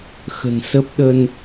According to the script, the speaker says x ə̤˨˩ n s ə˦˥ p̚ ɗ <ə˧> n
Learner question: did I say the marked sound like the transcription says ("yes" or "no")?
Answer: yes